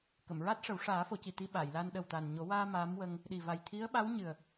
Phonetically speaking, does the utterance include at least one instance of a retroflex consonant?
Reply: yes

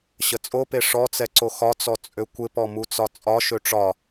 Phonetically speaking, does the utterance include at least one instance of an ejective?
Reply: yes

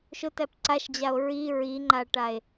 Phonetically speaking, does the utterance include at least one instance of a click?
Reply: yes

